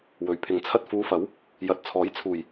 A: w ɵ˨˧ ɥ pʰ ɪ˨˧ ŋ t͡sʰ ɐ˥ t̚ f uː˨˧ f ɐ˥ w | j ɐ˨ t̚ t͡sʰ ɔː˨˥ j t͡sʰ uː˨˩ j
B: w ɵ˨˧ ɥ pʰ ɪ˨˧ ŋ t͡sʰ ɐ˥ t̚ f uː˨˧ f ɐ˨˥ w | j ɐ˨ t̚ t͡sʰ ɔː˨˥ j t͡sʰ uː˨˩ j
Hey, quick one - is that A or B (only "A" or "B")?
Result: B